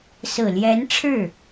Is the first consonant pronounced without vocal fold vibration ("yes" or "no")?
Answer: yes